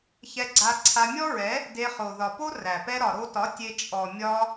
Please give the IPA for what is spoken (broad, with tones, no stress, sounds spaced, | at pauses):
ç ɛ˧ ɡ͡ǀ a˧ ǀʰ a˧ mʲ ɔ˦ ɹ ɛ˨˦ | d e˧ χ o˨ ð ɒ˨ p o˦ r æ˨ p ɛ˧ ɾ ɒ˨ ɾ o˧ t ɒ˨˦ tʲ e˧ t͡ʃʼ ɔ˨ mʲ ɒ˧